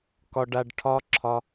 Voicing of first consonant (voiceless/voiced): voiceless